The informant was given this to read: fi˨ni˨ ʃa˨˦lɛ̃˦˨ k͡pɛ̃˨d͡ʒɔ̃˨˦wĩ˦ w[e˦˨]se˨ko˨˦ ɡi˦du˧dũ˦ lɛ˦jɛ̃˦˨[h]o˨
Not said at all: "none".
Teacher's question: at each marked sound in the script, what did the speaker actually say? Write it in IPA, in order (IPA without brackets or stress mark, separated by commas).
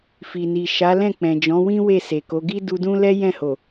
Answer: e˦˨, h